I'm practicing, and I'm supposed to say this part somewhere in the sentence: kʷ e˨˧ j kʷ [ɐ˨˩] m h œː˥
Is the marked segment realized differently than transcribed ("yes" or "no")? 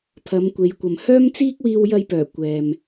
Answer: yes